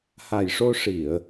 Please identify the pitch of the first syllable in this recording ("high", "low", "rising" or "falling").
low